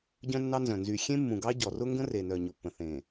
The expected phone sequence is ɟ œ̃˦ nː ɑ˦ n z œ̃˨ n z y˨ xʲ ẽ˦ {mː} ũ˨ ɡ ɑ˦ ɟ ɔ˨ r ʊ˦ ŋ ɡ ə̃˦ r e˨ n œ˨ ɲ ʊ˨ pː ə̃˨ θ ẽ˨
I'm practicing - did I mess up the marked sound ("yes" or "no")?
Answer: no